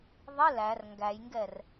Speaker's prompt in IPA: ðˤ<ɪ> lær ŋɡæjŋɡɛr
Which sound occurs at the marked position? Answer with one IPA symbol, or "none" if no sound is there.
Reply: ɪ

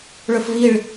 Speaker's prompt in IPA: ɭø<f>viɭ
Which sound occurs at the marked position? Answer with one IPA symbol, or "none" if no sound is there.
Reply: f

